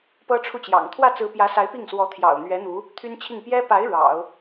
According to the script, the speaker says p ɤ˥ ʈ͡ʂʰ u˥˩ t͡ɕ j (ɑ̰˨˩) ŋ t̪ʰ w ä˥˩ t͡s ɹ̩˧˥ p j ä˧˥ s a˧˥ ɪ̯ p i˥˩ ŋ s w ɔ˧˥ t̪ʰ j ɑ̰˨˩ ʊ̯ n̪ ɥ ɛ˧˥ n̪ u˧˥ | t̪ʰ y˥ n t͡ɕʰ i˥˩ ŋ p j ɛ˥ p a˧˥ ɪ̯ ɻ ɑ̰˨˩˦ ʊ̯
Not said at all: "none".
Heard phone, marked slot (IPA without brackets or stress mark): ɑ̰˨˩